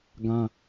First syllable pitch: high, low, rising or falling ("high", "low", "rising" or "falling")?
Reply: high